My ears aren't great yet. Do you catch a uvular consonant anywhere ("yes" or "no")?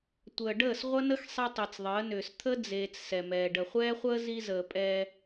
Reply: yes